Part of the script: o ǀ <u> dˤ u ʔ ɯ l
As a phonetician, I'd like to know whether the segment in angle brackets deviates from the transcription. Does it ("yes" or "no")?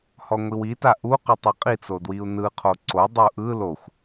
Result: yes